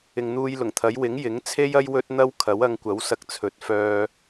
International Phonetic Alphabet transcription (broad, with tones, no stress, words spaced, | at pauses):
ɪ˨ŋn̪uː˧jlʊ˨˩ŋt̪ʰɐ˨˥j wɪ˨˥ŋjɪ˨˥ŋ t͡sʰe˥jɐ˥j wɵ˥t̚n̪ɐ˥w kʰɐ˨˥wɐ˧ŋkʷɐ˨˥w sɐ˧k̚t͡sʰɵ˨˥t̚fœː˧